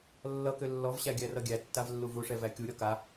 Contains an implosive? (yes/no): no